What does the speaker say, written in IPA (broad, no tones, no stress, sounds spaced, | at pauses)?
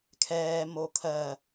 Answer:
kʰ ɛː m o kʰ ɜ